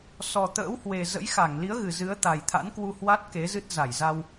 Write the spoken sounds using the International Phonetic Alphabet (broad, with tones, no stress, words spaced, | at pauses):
sɔ˨˩t̪ə̰ː˧˥whwe˨˩ zə̰˧˥jxa˧˩ŋli˨˦ə̯ ɣɨ˨˩zɨ˨˦ə̯t̪a˨˩jt̪ʰa̰˧˥n kwu˧hwa˦˥t̚ ke˨˦zɨ˦˥t̚ za˧˩jza˧w